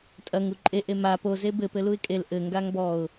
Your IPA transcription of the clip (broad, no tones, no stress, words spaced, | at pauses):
tʼɐŋu ǃʼeʔe ma poze bɘpɘluɪ̯ kʼel ʔɘŋɡaŋ bɔʊ̯